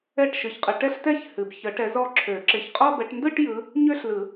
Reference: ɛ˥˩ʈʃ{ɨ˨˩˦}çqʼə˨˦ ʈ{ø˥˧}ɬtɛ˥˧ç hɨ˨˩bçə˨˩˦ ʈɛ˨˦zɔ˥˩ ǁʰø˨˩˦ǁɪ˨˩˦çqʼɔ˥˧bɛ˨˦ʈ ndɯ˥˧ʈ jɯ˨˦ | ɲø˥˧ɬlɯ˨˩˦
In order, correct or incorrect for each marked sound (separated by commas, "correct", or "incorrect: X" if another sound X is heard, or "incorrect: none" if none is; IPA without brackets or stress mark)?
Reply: incorrect: ɨ˨˦, incorrect: ɛ˥˧